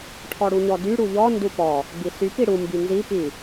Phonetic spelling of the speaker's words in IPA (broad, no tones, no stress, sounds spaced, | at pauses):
ʈʰ ɔ ɽ u ɲ ɔ d y ɽ u ʎ ɔ n d u p ɔ | b i s y p i ɽ u m b y n z i p i